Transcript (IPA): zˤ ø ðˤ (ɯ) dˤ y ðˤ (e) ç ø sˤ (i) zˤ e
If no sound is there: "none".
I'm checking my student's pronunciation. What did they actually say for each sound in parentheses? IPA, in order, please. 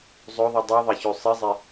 ɯ, e, i

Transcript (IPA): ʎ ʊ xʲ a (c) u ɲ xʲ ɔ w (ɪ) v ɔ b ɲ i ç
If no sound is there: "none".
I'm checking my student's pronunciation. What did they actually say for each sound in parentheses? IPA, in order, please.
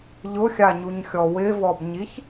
ɲ, ɪ

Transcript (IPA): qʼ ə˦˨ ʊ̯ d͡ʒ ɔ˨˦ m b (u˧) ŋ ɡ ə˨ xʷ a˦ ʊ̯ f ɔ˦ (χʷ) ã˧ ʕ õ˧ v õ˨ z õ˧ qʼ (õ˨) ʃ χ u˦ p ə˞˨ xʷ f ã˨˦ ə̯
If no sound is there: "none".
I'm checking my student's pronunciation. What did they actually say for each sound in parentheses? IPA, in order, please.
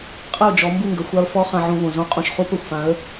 u˦˨, χ, õ˨

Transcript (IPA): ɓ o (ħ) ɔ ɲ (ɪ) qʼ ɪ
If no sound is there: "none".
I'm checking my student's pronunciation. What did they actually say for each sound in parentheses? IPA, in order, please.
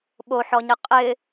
ħ, ɪ

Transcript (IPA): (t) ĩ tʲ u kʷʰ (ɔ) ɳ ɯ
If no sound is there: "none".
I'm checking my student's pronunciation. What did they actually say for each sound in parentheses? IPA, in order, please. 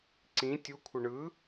ǀ, ɤ

